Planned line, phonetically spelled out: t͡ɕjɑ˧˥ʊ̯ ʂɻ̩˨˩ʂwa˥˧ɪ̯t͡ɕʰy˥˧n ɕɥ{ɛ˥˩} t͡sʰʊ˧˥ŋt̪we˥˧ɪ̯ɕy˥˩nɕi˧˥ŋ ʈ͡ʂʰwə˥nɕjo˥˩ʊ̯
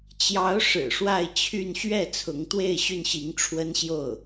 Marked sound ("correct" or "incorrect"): correct